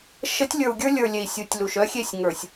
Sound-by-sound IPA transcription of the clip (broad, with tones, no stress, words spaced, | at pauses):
ʃə˨˦tʲlʲə˞˨u̯ɡʲə˞˦ lʲə˞˨lʲe˨i̯ sʲu˨˦tʲlu˨ʃ œ˦xʲe˦˨sʲ ŋə˞˨sʲ